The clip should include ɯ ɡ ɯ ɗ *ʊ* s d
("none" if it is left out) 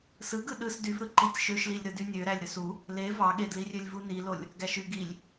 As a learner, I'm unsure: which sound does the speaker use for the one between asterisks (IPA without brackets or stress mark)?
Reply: ɯ